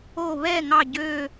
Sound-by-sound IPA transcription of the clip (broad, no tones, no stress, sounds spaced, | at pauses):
o β ɛ ŋ ɑ ɟ ø